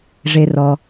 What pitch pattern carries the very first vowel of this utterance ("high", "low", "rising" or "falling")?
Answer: low